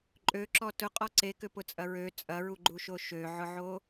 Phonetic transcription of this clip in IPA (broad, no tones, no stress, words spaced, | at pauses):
ǃʼøǁɔ tʊqʼɔ ǀekʏpʊt͡sʼɐ ɹø t͡sʼɐɹuɡ͡ǃuʃo ʃøʕʊʕo